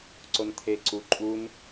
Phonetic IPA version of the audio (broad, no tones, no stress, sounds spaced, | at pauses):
ǀ o n t̪ʰ e ǀ u ǃʼ u n